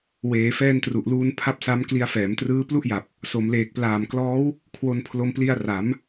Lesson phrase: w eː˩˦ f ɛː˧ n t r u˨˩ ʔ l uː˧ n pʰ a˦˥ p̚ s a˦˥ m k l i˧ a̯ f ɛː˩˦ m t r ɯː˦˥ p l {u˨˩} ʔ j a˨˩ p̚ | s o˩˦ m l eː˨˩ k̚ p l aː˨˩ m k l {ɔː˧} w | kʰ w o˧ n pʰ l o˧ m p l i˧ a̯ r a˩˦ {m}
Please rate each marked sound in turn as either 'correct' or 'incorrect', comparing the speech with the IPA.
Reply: incorrect: u˥˩, incorrect: ɔː˦˥, correct

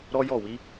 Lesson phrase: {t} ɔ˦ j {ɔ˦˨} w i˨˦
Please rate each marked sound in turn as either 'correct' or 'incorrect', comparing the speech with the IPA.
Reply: incorrect: ɾ, correct

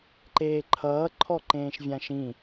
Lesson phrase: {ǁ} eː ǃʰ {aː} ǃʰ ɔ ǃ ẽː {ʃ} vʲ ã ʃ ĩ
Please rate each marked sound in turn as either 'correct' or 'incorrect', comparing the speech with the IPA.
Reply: incorrect: ǃ, incorrect: ʌː, correct

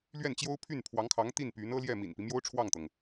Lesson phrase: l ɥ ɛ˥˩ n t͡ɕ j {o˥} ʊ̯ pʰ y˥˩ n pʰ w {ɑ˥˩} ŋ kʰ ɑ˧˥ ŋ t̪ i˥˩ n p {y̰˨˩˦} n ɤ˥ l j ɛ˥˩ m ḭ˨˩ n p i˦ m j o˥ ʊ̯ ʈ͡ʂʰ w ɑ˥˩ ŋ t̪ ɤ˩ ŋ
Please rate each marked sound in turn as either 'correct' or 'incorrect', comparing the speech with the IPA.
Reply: correct, incorrect: ɑ˧˥, incorrect: y˧˥

